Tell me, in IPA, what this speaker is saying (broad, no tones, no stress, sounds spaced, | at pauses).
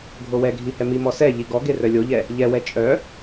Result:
ɡʱ o w ɛ ɡʱ i h ɛ m i m ɔ s ɛ ʎ i ɡ ɔ ɡ e r œ lʲ o ʎ ɛ | ʎ ɛ w ɛ t͡ʃʼ œ